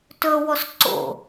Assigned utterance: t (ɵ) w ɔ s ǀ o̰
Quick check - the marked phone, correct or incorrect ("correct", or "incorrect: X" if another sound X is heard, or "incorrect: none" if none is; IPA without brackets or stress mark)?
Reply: correct